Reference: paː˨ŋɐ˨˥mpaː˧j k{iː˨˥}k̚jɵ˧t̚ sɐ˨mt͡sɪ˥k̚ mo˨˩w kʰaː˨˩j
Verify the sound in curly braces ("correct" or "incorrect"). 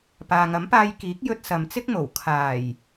correct